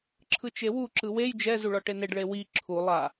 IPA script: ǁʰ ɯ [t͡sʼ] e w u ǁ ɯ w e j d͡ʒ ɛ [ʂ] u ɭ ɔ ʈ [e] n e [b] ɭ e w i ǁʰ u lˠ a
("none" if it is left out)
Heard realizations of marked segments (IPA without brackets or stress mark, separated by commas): t͡ʃ, z, e, ɖ